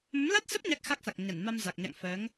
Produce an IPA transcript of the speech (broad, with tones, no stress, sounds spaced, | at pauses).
m ə˨˦ m l a˦˥ t̚ s ə˦˥ p̚ ɲ a˦˥ k̚ x a˦˥ k̚ s a˨˩ k̚ ɲ a˧˩ n m a˧ m z a˨˩ k̚ ɲ a̰˧˨ ŋ f əː˨˦ ŋ